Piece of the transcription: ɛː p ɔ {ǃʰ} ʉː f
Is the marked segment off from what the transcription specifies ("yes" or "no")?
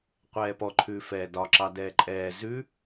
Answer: no